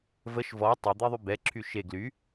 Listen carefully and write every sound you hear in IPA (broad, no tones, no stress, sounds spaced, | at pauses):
v ə ʃ v ɔ tˤ e d̪ e ðˤ y b ɛ ǁʰ y ʃ e ɡ l y